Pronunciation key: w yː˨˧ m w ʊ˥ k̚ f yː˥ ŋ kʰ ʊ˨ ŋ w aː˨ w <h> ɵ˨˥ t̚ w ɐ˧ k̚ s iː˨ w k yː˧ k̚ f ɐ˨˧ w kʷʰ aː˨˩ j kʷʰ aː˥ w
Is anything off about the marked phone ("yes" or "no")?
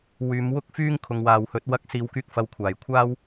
no